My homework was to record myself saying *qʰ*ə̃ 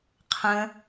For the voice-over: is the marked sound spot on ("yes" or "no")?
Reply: yes